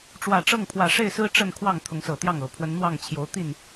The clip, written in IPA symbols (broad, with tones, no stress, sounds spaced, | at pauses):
ʈ͡ʂ w ä˨˩ ʈ͡ʂ ɤ˥˨ ŋ pʰ w ä˨˩ ʂ e˥˨ ɪ̯ s ɹ̩˦ ʈ͡ʂ ə˥˨ n kʰ w ɑ˥˨ ŋ t̪ʰ ʊ˨˦ ŋ s ɤ˨˩ t̪ j ɑ˥˨ ŋ ɤ˨˩ pʰ w ə˨˦ n n̪ w ɑ˥˨ ŋ t͡ɕʰ j o˨˦ ʊ̯ t̪ i˥˨ n